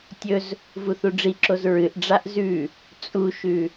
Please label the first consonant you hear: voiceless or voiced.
voiceless